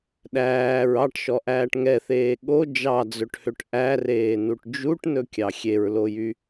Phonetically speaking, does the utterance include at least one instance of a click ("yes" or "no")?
no